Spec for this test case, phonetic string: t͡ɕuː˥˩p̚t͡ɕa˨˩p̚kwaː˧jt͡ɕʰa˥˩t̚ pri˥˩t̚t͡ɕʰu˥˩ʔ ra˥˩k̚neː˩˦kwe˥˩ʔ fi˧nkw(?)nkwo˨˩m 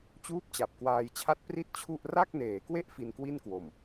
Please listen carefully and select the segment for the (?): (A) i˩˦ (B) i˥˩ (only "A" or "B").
B